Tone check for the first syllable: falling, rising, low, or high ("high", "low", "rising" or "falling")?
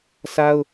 high